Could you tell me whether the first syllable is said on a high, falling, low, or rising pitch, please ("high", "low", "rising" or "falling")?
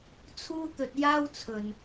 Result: high